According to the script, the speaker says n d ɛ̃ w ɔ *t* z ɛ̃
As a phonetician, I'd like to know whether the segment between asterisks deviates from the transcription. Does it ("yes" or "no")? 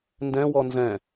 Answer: yes